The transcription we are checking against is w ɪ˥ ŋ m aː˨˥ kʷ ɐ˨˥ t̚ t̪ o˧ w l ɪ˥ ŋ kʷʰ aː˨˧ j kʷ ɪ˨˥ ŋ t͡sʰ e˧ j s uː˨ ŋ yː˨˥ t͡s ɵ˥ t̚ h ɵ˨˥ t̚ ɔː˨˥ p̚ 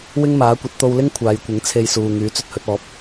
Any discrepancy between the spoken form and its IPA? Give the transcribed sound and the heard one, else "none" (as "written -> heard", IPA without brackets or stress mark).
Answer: none